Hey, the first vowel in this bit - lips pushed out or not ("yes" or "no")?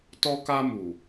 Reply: yes